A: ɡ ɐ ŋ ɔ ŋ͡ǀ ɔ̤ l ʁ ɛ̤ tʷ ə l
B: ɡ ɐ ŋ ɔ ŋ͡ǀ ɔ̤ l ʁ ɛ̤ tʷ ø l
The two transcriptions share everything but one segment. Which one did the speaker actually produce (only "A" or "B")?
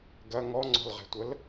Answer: A